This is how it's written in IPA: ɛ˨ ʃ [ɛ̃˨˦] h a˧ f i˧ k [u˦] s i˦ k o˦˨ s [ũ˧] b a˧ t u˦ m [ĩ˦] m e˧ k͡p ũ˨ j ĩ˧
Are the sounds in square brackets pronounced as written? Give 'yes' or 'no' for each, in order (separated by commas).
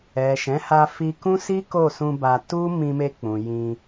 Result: yes, no, yes, no